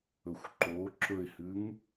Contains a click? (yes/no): yes